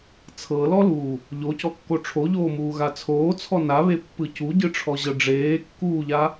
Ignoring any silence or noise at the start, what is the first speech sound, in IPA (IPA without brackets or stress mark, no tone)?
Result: t͡sʰ